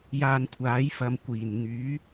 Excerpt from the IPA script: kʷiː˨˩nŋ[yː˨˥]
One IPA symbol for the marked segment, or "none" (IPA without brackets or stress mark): yː˨˥